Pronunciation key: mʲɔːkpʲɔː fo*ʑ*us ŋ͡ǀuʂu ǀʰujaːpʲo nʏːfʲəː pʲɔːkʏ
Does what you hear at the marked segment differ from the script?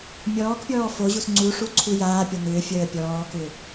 no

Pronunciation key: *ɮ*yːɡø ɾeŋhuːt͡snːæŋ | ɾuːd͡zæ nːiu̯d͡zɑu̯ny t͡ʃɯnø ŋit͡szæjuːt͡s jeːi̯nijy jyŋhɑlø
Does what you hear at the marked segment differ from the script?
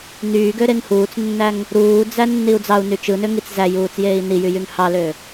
yes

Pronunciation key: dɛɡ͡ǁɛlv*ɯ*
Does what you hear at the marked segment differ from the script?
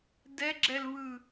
no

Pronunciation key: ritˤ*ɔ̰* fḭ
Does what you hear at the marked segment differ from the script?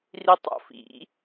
no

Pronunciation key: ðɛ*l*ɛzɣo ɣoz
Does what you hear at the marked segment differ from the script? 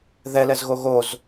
no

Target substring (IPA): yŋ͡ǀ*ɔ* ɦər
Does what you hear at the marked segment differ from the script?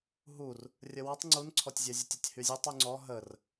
no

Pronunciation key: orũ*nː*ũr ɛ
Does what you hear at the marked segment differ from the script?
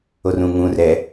yes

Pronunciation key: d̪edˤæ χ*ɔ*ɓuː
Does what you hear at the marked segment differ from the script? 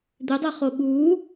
yes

